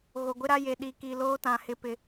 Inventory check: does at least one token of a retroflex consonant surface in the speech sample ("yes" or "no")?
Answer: no